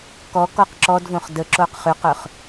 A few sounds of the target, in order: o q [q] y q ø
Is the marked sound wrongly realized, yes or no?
yes